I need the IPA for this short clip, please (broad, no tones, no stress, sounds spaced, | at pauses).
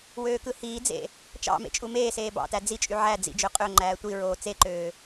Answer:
w øː k ɯ h iː d͡z ḛ | t͡ʃ ɑ̰ m ḛ t͡ʃʼ u m eː s eː b ɑ̰ t æ d͡z i t͡ʃʼ y ʕ æ d͡z ḭ d͡ʒ ø qʼ ø ŋ͡ǃ æː tʷ i ɹ oː t͡s e ǃ øː